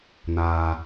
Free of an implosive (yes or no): yes